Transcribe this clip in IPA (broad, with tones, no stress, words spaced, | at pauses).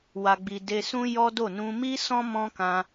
wa˧ɡ͡bi˧ de˧sũ˦ jɔ˦do˦˨ nũ˧ mi˦sɔ̃˦ mɔ̃˦kã˧